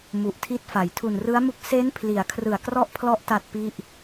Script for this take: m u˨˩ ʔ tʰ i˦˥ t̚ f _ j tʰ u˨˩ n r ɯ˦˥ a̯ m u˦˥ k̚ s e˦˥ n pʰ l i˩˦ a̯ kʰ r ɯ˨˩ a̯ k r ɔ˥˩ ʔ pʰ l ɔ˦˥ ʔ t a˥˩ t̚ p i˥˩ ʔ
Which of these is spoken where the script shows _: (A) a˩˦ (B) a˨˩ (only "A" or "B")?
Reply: A